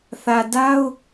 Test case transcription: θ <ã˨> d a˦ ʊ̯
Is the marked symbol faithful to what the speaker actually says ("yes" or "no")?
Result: no